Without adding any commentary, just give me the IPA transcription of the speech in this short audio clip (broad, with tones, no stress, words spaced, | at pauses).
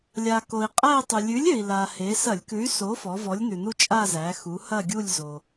lʲa˩ko˩i̯qʼæ˥˧i̯tˤʉ˩ lʲʉ˨˥lʲø˩i̯la˩he˩˧ sɐ˧˩˧lʲkʉ˨˥y̯so˨˥fɔ˩˧ vɔ˨˥lʲnʉ˩nu˥t͡ʃʼa˥˧ zæ˩˧xu˩˧ hɐ˥˧ɡʲu˥˧lʲ zo˩